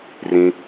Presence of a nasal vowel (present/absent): present